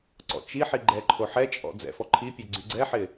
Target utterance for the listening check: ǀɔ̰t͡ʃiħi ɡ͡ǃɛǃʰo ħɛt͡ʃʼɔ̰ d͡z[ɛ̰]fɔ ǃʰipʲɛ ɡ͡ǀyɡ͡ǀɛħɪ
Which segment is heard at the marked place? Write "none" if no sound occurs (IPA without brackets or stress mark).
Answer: ɛ̰